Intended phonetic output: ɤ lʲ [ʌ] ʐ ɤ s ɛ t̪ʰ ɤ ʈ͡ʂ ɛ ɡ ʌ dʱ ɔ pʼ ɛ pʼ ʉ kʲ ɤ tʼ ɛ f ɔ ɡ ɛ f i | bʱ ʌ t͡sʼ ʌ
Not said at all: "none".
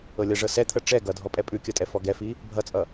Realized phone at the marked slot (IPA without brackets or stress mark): ʌ